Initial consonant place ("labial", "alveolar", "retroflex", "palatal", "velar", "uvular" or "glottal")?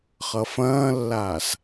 uvular